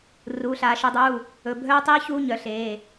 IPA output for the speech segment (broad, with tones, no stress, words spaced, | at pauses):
ruː˩˧ɬaː˩˧ ʃɵ˩˧dˤuː˩˧˩ | ɵ˩˧˩bʱœː˦˥tˤiː˦˥ çuː˦˥ɲœ˩˧ɬeː˩˧˩